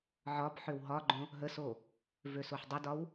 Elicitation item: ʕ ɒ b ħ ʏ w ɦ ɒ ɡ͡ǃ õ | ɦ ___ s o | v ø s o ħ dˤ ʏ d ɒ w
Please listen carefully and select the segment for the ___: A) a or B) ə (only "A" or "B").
B